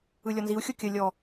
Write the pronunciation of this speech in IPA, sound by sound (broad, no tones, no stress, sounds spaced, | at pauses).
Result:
ɯ lʲ ɔ n z i u̯ xʲ o kʲ ə lʲ ɔ